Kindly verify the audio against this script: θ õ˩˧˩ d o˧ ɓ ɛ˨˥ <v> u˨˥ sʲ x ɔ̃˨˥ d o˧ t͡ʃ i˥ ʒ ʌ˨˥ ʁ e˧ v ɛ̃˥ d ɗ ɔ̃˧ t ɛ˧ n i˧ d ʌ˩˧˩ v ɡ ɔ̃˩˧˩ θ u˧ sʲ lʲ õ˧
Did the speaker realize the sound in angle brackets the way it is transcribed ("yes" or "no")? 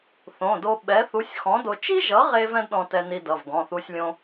no